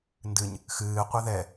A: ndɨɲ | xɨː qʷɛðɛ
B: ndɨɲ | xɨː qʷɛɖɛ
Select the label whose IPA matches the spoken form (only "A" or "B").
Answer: A